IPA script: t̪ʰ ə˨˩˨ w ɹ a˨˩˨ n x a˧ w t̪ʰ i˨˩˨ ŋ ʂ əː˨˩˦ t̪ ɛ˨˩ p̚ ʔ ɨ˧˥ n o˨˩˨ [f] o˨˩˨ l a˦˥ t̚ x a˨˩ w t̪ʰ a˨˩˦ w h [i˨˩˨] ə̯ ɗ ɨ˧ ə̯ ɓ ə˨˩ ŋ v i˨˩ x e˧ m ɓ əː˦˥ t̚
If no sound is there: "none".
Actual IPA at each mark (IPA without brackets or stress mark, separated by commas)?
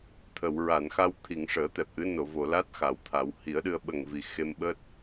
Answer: v, i˨˩˦